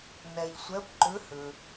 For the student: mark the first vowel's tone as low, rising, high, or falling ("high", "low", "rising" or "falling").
low